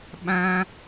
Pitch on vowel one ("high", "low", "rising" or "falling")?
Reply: high